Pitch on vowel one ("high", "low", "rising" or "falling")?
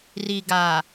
low